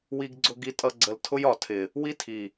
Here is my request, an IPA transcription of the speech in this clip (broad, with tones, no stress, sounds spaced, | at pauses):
w i˨ ɡ ɡ͡ǀ ʊ˨ ɡ i˨ tʼ ʌ˨ ɡ͡ǀ ə˨ l tʰ ʊ˦ j ɒ˨ tʰ ɪ˨ | w i˦ tʰ i˨